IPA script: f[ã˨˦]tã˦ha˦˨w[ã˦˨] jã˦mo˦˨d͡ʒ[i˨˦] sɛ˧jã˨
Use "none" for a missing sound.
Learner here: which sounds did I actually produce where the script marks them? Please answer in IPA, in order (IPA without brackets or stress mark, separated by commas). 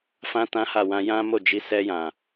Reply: ã˦, ã˧, i˨˦